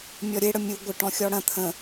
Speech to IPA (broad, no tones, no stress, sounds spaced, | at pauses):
mʲ ɔ ɾʲ e ɽ ə mʲ u ɡʷ ə ʈ ɔ̃ xʲ ɔ ɽ ɐ̃ t̪ʰ ə̃